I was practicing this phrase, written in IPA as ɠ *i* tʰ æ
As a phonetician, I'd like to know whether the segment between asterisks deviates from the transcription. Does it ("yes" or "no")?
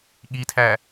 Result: no